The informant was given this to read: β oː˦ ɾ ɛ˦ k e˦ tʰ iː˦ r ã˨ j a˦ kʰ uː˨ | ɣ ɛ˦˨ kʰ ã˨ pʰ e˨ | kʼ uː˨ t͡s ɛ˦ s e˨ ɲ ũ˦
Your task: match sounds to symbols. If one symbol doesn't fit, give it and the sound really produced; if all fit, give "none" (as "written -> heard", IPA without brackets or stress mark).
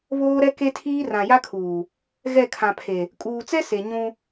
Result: none